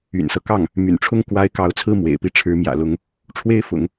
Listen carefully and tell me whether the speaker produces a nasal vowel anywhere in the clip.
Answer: no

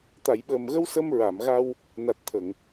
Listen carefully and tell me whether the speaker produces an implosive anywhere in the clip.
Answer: yes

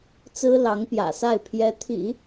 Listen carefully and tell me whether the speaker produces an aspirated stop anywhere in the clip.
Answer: yes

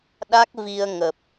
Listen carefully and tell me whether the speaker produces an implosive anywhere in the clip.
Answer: yes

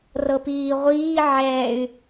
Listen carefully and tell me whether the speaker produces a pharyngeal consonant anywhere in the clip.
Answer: yes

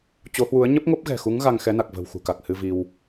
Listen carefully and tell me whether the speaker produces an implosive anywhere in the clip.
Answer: no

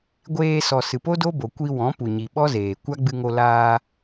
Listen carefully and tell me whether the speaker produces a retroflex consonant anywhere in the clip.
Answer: no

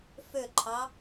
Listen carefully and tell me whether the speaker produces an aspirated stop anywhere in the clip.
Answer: yes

